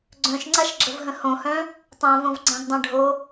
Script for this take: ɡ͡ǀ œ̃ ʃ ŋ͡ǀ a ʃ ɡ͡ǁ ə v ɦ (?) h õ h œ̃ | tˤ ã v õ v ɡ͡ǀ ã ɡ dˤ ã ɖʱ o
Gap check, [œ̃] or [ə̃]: ə̃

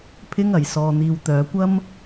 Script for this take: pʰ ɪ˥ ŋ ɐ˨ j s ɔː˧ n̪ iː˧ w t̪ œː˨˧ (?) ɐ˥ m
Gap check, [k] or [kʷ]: kʷ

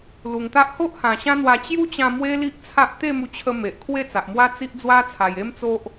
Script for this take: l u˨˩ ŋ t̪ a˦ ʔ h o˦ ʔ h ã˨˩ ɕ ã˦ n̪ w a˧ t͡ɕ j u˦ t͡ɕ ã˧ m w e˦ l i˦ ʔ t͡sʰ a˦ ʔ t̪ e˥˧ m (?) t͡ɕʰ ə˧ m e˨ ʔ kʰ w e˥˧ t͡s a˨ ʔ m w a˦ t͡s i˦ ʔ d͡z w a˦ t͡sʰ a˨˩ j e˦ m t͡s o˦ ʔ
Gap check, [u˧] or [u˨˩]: u˧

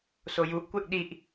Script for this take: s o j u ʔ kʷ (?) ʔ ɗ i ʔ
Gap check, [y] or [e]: e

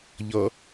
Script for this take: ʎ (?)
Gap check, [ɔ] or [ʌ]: ʌ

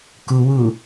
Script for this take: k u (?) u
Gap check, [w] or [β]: w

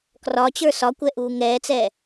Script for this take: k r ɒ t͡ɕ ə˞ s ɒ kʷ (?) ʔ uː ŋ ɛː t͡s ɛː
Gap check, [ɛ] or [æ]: ɛ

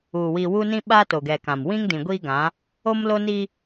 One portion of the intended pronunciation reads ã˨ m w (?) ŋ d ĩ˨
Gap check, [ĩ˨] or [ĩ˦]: ĩ˦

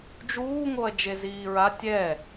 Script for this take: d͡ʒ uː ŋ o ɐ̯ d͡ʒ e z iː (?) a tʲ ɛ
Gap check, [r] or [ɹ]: ɹ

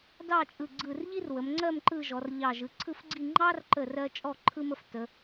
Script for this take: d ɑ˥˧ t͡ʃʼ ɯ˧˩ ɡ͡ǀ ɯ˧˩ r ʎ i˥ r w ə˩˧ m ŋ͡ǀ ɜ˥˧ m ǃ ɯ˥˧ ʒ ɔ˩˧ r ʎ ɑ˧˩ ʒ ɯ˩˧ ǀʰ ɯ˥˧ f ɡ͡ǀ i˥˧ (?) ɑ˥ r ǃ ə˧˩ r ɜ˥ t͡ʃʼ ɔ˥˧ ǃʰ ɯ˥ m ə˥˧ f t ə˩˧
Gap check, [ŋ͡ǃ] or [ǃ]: ŋ͡ǃ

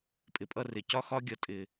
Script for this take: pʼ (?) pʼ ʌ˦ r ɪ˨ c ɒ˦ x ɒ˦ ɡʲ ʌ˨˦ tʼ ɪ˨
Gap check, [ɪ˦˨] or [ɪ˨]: ɪ˨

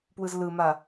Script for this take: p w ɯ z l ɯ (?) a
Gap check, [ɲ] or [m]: m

